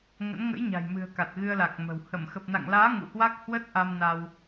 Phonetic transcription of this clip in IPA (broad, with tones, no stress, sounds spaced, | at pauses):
ŋ ə̰˧˥ n ŋ ə̰˧˥ j ɲ a̤˨˩ j m ɨ̤˨˩ ə̯ k a˨˩ t̚ ɣ ɨ˧ ə̯ l a˨˩ k̚ m ə̤˨˩ w h ə˧˩ m x ə˨˩ p̚ n a̰˧˨ ŋ l aː˨˦ ŋ ṵ˧˨ h w a˦˥ k̚ h w ə˦˥ t̚ ʔ a˧ m n a˧ w